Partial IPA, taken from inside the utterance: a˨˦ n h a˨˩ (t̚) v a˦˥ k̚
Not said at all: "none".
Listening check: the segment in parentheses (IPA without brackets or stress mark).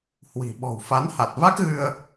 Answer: t̚